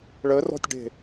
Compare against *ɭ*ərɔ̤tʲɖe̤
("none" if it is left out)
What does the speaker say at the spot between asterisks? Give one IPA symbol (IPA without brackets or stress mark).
ɭ